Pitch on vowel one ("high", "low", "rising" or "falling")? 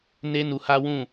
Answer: high